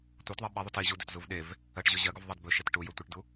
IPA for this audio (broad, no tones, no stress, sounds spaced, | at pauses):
tʷ ɜ t ðˤ i ɓ i ðˤ u t i ʑ u d ɵ t z u v ɗ e v | ɜ ʈ ʑ ɵ ʑ ɜ ɡ u v ðˤ e d b ɵ ʃ e t ʈ u j ɵ tʷ i ʈ d u